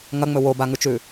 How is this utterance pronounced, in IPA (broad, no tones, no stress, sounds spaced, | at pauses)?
ŋ ɐ ŋ͡m ɵ w o b a ŋ ʉ t͡ʃ ʉ